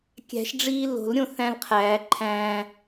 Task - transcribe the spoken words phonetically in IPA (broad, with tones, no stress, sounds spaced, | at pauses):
kʲ æ̤˨˩˦ ʃ ɖ͡ʐ iː˧ l o̤˨˩˦ l ɾʲ õ˧ θ æ̃˧ l qʰ æː˨˩˦ ǃʰ æ̃ː˧